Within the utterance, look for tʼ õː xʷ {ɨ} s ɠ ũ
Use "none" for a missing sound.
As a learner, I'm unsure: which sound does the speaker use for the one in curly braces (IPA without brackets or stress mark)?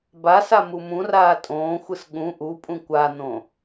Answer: ɨ